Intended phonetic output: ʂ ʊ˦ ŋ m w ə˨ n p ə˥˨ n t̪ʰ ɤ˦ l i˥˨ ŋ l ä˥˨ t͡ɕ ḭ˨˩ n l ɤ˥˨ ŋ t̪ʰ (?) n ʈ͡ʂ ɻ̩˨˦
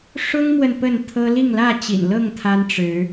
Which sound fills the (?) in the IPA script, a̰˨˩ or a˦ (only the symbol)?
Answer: a˦